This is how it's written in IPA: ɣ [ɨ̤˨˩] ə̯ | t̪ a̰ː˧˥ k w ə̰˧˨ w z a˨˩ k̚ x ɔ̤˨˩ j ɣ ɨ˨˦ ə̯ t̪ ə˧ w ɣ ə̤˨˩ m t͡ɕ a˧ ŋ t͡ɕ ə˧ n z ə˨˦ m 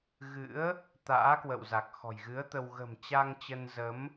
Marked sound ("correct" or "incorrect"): incorrect